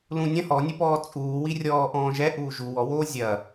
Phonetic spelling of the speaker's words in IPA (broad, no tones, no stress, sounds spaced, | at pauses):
l ũ nʲ ɐ̃ h ɔ nʲ e p ɔː t͡sʼ uː w i rʲ ɔː ʔ ɔ̃ː ʒ ɛ ʔ uː ʒ u w ɔ w oː zʲ ɐ